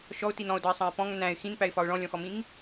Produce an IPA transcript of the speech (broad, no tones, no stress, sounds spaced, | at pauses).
ʃ ɔ ʊ̯ t i n ɔ̃ ʊ̯ d ɒ ɪ̯ sˤ ɑ̃ ɪ̯ p ɔ̃ ŋ n æ̃ ɪ̯ x ĩ n p æ ɪ̯ f ɒ ʊ̯ ɭ ɔ̃ lʲ ɔ̃ x ɔ m ĩ ŋ